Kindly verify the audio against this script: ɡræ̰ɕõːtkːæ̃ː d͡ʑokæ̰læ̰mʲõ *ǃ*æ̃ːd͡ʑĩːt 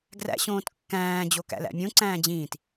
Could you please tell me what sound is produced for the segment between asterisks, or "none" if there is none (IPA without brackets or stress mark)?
ǀ